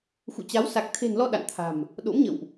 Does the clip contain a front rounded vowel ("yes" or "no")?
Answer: no